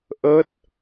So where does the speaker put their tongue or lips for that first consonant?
throat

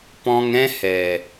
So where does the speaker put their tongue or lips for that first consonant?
lips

